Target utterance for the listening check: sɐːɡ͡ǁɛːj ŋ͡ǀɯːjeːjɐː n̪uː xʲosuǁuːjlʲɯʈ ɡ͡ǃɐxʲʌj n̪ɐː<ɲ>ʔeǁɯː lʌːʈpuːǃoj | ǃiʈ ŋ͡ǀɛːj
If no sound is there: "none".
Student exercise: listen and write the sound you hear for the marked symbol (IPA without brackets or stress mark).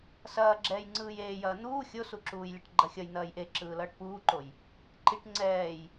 j